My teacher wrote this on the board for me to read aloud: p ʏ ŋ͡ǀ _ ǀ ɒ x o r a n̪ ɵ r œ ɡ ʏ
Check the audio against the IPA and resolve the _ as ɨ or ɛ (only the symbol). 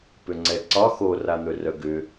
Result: ɛ